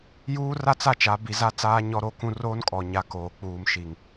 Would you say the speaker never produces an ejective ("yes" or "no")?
no